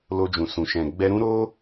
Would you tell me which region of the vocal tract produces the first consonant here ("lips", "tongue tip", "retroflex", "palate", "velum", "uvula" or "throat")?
tongue tip